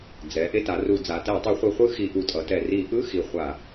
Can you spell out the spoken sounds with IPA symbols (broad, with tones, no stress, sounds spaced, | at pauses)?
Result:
d͡z ɛ˩˧ ʔ e˧˥˧ t a˩˧ r u˧˩˧ d͡z a˩˧ t ɛ˧˩˧ tˤ ɯ˧˩˧ χʷ i˧˩˧ χʷ ɯ˧˥˧ x i˧˩˧ ʔ u˨˩ tʼ ʌ˩˧ t ɛ˨˩ r i˧˩˧ ʔ ɯ˧˥˧ x i˨˩ χʷ a˧˩˧